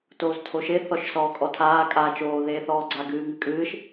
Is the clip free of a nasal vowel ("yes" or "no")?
yes